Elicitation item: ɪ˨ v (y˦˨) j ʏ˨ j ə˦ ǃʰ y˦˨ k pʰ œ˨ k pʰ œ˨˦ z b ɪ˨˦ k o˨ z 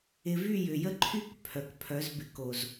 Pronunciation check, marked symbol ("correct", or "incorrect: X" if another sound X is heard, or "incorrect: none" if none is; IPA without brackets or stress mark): correct